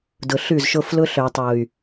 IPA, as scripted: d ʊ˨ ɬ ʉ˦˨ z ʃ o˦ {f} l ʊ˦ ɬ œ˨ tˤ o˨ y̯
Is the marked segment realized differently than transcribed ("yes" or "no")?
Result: no